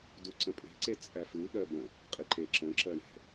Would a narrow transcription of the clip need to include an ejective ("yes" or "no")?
yes